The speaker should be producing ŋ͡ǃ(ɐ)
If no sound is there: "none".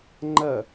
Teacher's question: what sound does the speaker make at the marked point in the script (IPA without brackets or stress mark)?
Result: ɐ